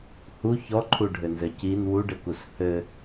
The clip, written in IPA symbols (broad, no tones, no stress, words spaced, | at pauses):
hu çɔǃʰuɖʱɘnzɘ cin wuɖɘkus hɘ